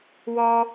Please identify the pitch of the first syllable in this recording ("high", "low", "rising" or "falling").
low